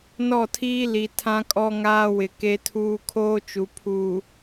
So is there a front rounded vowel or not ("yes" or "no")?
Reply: no